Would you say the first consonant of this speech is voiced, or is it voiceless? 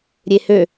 voiced